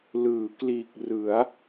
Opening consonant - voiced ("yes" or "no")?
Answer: yes